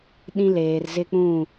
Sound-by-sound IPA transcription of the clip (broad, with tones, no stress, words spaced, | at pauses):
ɗĩ˦leː˨rzɪ˦k͡pũ˦˨